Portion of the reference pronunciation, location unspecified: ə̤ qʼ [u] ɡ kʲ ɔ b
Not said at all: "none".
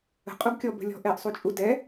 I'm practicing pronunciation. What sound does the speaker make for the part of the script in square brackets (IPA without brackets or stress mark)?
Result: u